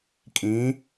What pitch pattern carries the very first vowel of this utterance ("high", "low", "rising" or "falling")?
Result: rising